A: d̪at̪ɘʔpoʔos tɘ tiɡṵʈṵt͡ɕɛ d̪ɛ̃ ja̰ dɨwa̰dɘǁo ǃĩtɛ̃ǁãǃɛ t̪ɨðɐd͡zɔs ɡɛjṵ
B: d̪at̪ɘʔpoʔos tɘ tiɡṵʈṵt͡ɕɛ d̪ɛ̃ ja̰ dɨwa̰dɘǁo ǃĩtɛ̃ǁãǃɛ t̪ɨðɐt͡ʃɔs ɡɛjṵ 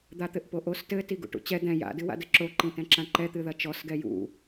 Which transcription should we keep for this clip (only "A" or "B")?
B